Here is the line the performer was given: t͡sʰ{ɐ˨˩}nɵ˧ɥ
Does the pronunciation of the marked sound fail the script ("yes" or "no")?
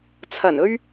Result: no